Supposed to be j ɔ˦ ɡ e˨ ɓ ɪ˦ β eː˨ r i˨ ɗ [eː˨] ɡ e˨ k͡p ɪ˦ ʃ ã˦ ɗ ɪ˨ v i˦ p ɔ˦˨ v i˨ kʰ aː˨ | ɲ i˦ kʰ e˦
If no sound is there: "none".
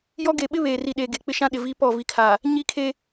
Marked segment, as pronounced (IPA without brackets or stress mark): e˨